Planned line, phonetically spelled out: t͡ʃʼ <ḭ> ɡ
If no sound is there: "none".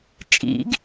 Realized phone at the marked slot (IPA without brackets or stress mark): ḭ